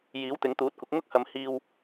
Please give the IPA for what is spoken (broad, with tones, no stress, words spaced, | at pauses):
jiː˨˥wt̪ɪ˨˧ŋt̪uː˨˥t̚kʷɪ˨˥k̚ ŋʊ˥k̚hɐ˨m hiː˨w